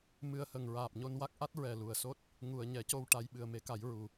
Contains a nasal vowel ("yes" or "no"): no